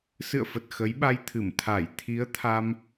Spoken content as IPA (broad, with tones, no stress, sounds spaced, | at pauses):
s ɨ̰˧˨ ə̯ f ə˨˩ t̚ x ə˨˦ j ɓ a˧ j t̪ʰ ɨ˧˩ m t̪ʰ a˧˩ j t̪ʰ i˨˦ ə̯ t̪ʰ a˧ m